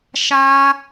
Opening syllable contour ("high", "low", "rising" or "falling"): high